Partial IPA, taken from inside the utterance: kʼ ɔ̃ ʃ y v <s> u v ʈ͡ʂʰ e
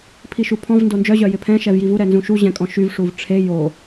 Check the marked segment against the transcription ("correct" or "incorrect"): incorrect